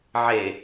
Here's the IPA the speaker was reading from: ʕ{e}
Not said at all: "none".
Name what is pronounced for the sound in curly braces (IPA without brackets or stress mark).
e